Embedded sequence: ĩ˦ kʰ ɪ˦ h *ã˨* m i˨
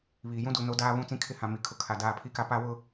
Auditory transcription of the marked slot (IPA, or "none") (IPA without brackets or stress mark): ã˨